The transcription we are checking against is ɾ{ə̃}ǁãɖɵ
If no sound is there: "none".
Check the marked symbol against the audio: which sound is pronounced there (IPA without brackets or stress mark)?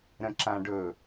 ə̃